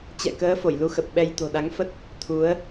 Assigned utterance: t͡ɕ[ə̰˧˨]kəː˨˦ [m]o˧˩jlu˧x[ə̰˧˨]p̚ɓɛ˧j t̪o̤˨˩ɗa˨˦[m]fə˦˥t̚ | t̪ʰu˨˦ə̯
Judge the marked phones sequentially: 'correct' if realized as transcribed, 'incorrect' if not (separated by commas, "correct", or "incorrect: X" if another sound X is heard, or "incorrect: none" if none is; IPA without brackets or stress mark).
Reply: incorrect: ɛ̰˧˨, incorrect: f, incorrect: ə˨˩, incorrect: ŋ